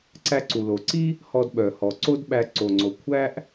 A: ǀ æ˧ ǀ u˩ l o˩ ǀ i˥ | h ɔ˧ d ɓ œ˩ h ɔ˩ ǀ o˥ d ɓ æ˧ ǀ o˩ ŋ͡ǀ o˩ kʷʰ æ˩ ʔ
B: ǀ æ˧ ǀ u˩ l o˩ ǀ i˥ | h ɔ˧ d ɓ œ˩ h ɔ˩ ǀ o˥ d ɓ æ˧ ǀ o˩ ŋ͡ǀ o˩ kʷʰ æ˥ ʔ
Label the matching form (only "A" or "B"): B